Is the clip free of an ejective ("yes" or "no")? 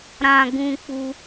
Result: yes